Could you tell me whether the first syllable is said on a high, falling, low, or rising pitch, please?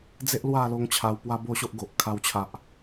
high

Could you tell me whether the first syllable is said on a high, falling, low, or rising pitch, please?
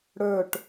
falling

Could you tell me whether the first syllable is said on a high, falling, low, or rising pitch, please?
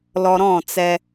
low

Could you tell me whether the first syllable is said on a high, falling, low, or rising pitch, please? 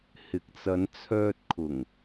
low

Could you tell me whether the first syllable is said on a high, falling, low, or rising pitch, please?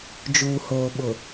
low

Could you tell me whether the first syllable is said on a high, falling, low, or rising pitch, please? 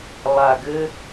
low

